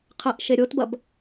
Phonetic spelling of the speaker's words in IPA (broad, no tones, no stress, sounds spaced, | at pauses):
qʰ ɐ ʔ ʃ e ɾʲ o t b ɐ b